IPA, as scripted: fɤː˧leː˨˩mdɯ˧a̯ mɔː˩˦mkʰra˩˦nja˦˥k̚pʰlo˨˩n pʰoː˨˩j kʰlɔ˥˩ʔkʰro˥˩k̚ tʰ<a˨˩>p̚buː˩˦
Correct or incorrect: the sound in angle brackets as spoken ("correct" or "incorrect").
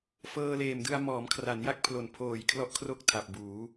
correct